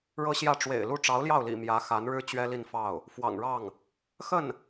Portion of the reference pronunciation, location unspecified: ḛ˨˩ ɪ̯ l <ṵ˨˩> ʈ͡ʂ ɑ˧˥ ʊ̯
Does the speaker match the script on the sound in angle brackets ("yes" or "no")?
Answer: no